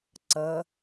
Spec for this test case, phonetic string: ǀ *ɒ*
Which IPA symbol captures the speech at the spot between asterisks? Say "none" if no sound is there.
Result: ʌ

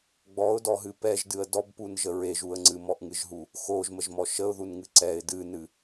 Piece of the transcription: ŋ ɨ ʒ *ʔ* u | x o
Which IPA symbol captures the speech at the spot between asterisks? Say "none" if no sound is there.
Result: ɦ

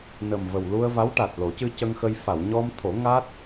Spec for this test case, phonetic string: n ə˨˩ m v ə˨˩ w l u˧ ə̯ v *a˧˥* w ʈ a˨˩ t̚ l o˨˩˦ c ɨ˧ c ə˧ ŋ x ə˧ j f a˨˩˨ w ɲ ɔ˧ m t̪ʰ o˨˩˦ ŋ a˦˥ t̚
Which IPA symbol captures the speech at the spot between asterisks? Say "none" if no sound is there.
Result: a˧˥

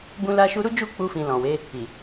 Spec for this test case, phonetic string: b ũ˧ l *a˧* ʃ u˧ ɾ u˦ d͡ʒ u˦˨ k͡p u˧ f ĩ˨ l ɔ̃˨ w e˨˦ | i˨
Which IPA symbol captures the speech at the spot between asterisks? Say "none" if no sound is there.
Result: a˧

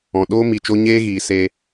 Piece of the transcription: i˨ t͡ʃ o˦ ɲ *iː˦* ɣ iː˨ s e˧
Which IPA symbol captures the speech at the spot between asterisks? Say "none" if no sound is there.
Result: eː˦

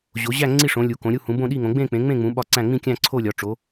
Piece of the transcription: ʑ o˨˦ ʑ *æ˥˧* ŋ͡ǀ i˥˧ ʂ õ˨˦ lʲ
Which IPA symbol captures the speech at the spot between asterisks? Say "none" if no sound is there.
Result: æ˥˧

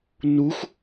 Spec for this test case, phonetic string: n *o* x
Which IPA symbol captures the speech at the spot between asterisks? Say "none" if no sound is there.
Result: u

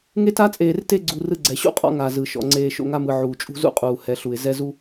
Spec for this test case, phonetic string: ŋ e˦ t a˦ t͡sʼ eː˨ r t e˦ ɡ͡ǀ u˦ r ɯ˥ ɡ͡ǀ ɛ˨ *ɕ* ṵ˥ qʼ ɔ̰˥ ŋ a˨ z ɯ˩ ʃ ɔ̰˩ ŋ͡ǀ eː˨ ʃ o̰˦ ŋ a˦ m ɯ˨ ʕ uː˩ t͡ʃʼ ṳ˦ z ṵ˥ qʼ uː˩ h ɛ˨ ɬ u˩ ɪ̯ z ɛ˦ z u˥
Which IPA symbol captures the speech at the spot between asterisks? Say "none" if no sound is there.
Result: ɕ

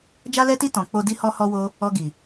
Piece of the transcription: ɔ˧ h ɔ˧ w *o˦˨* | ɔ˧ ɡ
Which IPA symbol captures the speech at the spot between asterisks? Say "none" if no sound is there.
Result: o˧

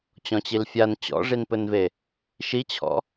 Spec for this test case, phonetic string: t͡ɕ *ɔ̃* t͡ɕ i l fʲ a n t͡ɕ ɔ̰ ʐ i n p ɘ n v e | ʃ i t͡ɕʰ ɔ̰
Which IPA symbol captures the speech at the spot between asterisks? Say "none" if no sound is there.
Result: ɔ̃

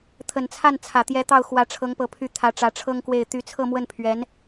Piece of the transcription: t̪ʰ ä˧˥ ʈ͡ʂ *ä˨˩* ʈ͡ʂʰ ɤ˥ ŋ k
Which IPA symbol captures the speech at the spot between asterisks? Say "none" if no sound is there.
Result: ä˧˥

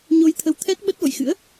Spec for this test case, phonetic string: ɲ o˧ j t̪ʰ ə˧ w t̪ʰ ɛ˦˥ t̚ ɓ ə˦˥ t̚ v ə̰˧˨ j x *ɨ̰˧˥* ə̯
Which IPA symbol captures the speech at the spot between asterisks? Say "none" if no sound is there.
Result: ɨ̰˧˥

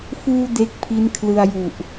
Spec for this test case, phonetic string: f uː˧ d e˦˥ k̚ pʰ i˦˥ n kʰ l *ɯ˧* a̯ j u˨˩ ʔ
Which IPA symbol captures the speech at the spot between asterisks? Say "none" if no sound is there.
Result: ɯ˧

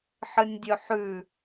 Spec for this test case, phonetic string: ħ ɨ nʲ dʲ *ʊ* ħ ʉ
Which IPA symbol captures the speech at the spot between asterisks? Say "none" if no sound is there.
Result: ɵ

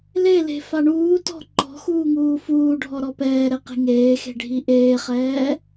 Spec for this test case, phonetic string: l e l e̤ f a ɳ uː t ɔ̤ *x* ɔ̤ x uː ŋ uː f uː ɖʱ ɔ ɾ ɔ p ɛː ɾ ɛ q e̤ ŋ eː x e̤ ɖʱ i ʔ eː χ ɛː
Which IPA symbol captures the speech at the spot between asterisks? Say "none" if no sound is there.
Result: ǃ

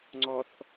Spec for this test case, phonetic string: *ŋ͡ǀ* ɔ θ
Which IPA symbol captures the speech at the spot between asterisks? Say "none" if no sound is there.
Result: ŋ͡ǀ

